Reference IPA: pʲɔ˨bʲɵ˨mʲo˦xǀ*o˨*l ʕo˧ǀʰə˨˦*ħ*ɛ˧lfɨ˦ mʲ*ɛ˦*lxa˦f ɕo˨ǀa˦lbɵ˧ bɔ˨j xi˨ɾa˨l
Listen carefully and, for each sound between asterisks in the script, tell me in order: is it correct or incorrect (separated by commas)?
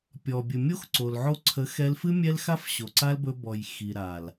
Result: correct, incorrect, correct